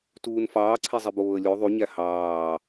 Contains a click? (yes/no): yes